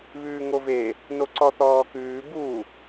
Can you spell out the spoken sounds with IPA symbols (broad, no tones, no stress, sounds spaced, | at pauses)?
β ʉː ŋ o v e | n o ǀ ɔ θ ɔː k ʉː b u